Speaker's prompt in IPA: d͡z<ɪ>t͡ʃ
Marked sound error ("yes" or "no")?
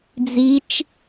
yes